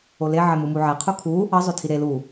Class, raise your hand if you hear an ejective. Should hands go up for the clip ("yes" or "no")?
no